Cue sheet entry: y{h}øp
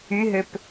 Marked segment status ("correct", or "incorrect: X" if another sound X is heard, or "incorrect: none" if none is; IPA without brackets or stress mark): incorrect: ɦ